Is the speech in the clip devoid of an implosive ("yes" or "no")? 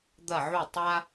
yes